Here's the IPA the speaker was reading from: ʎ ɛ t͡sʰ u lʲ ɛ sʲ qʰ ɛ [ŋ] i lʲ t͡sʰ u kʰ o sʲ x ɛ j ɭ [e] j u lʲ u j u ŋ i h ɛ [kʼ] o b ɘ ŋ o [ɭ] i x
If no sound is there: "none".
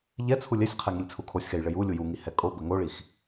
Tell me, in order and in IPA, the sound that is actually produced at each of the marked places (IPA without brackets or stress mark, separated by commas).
ŋ, ɘ, kʼ, ɭ